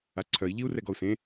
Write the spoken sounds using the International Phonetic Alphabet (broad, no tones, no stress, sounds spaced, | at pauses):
a ǀʰ œ i̯ ʎ i u̯ r ɛ ɡ ɔ u̯ s ẽ